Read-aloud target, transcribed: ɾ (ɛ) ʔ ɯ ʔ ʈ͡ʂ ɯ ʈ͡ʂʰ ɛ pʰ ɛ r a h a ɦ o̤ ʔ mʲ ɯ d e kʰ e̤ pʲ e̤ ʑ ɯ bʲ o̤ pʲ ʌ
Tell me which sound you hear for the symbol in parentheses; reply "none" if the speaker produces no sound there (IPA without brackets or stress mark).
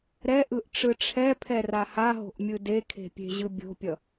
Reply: ɛ